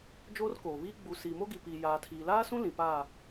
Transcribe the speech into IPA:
d͡ʒoː˦rkoː˨βiː˦ ɡ͡bu˨ siː˨mo˦ɡi˨piː˨ jaː˨tʰiː˨laː˦sũ˦ lĩ˨paː˦˨

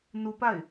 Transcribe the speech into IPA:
nupaɪ̯

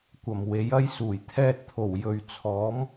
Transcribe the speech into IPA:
kʷɐ˨˩m we˨˥jɐ˥jsuː˨˩j t̪ʰɛː˧t̚t̪ʰo˨˩w jɵ˨ɥ t͡sʰɔː˨˥m

